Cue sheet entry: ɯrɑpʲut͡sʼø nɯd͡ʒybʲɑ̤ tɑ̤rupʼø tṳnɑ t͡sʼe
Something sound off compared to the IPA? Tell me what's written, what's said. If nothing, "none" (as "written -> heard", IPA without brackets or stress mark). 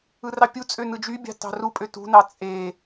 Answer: none